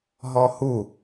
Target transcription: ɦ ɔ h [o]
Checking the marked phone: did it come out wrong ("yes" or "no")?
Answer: yes